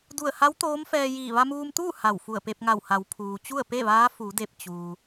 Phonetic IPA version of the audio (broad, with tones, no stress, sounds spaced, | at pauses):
d u˧˩ ə̯ h a˧˥ w t̪ oː˧˥ m f ɛː˧ j iː˧˩ ʋ a˧ m uː˧ m t̪ uː˥˨ h a˧˩ w f u˧˩ ə̯ p e˧ p̚ ŋ a˧˩ w h a˩˧ w pʰ uː˩ t͡ɕ u˥˨ ə̯ p e˥˨ ʋ aː˧˥ f u˩˧ d e˧˩ p̚ t͡ɕ uː˩